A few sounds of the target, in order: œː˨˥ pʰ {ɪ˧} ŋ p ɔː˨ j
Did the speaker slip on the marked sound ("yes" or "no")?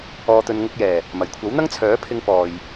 no